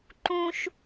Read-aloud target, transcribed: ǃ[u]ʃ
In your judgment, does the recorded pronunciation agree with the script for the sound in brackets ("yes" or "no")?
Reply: no